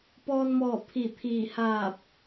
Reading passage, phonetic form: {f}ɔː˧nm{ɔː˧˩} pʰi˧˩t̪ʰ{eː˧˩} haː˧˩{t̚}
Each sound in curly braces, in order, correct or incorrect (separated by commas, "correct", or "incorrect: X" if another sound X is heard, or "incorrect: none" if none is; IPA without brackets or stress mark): incorrect: p, correct, incorrect: iː˧˩, incorrect: p̚